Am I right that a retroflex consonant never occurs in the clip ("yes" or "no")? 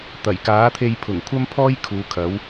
yes